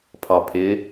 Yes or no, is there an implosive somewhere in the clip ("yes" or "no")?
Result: no